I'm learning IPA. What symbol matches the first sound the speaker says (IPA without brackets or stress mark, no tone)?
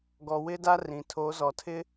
ɡ